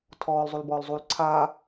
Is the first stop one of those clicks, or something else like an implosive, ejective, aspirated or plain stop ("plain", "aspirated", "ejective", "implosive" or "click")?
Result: aspirated